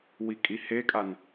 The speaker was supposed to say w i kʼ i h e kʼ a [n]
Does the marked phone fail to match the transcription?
no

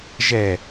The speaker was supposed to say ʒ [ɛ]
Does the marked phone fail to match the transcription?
no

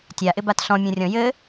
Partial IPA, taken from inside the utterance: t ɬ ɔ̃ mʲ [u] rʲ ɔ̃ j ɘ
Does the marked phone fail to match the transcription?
yes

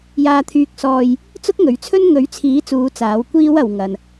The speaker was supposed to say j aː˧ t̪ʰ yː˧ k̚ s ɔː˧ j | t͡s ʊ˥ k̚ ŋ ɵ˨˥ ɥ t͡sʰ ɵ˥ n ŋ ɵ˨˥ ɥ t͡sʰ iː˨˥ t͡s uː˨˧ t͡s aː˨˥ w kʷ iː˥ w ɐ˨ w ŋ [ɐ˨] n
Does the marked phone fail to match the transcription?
no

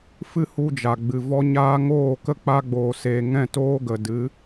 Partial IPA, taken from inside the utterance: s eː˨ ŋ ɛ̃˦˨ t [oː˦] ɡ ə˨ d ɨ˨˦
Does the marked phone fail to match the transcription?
no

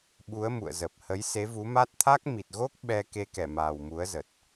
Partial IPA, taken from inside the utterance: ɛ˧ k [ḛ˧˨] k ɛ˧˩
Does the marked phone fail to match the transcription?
yes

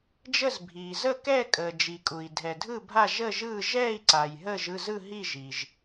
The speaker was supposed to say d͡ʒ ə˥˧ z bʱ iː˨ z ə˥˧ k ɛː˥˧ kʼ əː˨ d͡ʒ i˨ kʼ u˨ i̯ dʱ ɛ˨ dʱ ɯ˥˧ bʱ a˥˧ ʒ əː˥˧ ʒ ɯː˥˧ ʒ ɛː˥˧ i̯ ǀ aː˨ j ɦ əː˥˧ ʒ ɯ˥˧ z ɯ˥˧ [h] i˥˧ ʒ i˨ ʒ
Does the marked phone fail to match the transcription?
yes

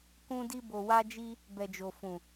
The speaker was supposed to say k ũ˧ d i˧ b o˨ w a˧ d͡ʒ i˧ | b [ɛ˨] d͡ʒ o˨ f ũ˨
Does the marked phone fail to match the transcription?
no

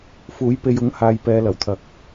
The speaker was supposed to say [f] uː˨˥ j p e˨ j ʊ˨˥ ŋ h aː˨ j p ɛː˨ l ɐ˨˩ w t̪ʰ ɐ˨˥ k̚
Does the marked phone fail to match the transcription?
no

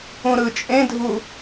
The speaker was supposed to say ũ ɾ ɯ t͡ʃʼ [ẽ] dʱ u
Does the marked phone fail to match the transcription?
no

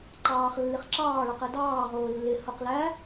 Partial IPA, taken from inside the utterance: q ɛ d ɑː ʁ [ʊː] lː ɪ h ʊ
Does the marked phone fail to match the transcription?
no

